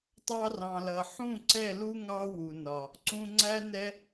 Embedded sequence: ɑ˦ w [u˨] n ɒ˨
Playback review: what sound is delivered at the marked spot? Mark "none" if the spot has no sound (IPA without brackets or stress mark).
u˨